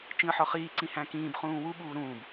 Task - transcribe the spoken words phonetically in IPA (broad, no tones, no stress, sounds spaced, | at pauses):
t͡ʃ ĩ ə̯ ħ ɒ χ iː ǀ ĩ h æ̃ k ĩː b χ ũː w u ɓ uː ɾ ũː b